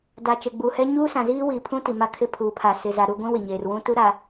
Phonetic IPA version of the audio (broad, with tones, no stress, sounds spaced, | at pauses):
d a˨ t͡ʃ e˨ ɡ͡b u˨ h ɛ˦ ɲ uː˦ s ã˨ z iː˦ w i˨ pʰ ũ˦ t i˨ m a˦ kʰ ɪ˦ pʰ uː˨ pʰ a˨ s ɪ˨ z a˨ ɾ u˦˨ ɡʷ ĩ˦ w ɪ˨ ɲ eː˨ r w ũ˦ t u˦ ɾ a˨